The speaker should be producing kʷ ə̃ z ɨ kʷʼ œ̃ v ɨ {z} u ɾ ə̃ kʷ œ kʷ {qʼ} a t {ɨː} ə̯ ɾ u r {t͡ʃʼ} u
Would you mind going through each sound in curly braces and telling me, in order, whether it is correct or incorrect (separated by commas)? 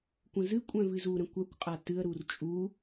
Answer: correct, correct, incorrect, correct